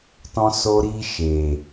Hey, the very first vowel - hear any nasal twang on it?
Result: yes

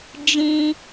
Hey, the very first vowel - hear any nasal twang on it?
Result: yes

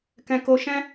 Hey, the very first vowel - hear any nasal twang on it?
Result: yes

